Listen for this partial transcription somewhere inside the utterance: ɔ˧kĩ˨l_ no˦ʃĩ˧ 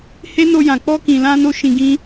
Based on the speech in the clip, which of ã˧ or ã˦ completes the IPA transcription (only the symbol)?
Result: ã˧